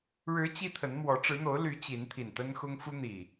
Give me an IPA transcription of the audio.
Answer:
ɻ ɻ̩˨˦ t͡ɕ i˦ t̪ʰ ə˨˦ n m w ɔ˨˦ ʈ͡ʂ ɻ̩˨˦ n̪ o˨˦ ʊ̯ l y˨˦ t͡ɕ i˨˦ n t̪ʰ i˨˩ n t̪ ə˦ n x ʊ˦ ŋ f u˦ n̪ i˨˩

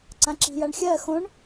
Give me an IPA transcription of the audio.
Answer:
ǀ ã ǁ i̤ j a ɳ xʲ ɜ x õ ɳ

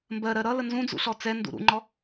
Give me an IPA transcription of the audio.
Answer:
m b ɜ ɾ ɜ ɾ ʌ l ə n z ũ d͡z ṵ ɬ ɔ t͡s ɛ n d ṵ ɾ ṵ ŋ͡ǃ ɔ

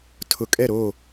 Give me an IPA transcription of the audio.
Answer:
tʰ ʊ˨ kʼ ɛ˦˨ ɾ o˦˨

